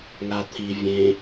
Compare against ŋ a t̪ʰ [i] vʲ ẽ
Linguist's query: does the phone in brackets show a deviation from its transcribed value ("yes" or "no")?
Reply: no